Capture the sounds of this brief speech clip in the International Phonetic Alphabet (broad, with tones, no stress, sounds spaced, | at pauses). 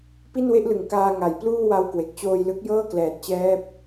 p i˥˩ n w e˥˩ ʔ l ɯ˩˦ ŋ k aː˧ ŋ a˩˦ j p l uː˥˩ w a˧ w k w e˨˩ k̚ t͡ɕ oː˧ j l ɯ˦˥ k̚ j ɤː˥˩ k l ɛː˨˩ t̚ t͡ɕ ɛː˦˥ p̚